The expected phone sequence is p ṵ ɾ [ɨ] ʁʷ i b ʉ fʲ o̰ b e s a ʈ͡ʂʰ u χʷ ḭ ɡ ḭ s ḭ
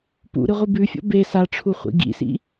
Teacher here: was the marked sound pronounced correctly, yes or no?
yes